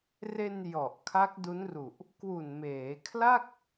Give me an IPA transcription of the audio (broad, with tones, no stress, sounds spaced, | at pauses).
r e˧ n j ɔ˨˩ ʔ kʰ a˦˥ k̚ d u˦˥ n r u˨˩ ʔ | k w u˨˩ n m eː˩˦ kʰ l a˥˩ k̚